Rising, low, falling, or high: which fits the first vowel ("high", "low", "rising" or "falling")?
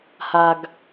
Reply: low